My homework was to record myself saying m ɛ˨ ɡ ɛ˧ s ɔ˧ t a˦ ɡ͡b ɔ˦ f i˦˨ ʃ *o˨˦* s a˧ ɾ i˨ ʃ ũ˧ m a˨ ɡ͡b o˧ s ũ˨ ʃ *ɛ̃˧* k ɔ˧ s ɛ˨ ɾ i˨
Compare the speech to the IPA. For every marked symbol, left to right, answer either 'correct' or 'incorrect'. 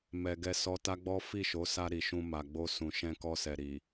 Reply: correct, correct

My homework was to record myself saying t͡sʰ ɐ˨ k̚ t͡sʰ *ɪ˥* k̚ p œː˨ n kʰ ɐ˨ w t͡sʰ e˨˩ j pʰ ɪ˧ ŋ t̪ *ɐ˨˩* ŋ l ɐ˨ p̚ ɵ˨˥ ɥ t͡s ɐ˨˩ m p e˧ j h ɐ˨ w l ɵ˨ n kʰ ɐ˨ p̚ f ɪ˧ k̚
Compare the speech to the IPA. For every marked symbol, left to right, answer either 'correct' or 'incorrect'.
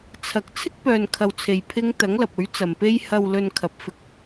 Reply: correct, incorrect: ɐ˨˥

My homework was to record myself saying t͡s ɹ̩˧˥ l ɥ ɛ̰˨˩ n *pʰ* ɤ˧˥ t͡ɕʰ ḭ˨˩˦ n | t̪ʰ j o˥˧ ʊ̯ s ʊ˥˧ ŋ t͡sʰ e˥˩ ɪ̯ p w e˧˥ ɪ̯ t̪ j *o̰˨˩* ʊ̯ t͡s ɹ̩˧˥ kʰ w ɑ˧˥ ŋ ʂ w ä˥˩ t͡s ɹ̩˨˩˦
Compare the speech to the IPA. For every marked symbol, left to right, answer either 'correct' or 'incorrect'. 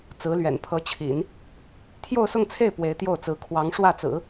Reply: correct, incorrect: o˥˩

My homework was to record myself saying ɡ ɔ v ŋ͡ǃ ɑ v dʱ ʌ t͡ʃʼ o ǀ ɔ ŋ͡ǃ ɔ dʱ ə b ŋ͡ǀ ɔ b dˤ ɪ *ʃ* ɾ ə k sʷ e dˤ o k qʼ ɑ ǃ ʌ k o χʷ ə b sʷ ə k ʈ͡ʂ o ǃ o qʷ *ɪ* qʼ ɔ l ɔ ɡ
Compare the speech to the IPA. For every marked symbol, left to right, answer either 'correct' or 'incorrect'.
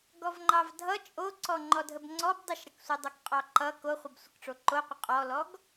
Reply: correct, correct

